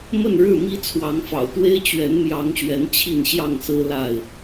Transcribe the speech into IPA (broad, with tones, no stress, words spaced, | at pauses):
mə˥˨nɻɻ̩˥˨mi˦ t͡sʰwɑ˨˦ŋfɑ̰˨˩ʊ̯t̪we˦ɪ̯ t͡ɕɥɛ˨˦nmjɑ˨˦ŋɕɥɛ˨˦n t͡ɕʰi˥˨nɕjɑ˥˨ŋsɹ̩˦ la˥˨ɪ̯